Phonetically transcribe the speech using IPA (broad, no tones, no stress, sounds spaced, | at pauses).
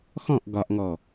x ɔ̃ ʔ ɡ ɒ ʔ ŋ ɔ